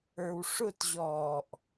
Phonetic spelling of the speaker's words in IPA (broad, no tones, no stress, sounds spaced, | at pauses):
ə˞ w ʂ ʊ t ʑ ɔː ʔ